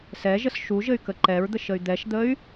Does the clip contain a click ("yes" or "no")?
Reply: yes